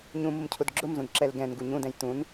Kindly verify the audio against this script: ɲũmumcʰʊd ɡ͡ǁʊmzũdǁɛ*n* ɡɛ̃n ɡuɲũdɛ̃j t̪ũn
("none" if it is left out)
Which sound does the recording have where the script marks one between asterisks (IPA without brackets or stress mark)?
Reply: l